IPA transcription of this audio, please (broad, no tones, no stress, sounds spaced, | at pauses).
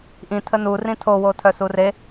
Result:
ʔ ĩ tʰ ə n u r ĩ tʰ o w o tʰ œ s u r e